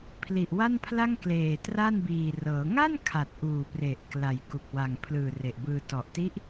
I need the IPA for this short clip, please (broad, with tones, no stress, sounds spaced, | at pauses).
pʰ l i˨˩ ʔ w a˥˩ n pʰ l a˥˩ ŋ k l eː˨˩ t r a˥˩ n b iː˨˩ r ɤː˩˦ ŋ a˥˩ n kʰ a˨˩ t̚ ʔ uː˨˩ p r e˨˩ ʔ k l a˨˩ j k u˨˩ k̚ w a˨˩ ŋ pʰ l ɯː˨˩ r e˨˩ ʔ b ɯː˧ t ɔ˨˩ ʔ t i˦˥ ʔ